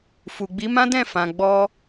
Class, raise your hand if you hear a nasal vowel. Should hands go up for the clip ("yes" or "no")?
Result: yes